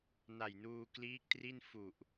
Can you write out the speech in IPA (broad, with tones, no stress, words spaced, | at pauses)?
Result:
na˨˩jnuː˧kliː˦˥k̚tri˥˩n fu˨˩ʔ